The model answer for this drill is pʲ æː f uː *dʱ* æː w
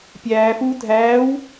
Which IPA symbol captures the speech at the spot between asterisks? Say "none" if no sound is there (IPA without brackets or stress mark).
dʱ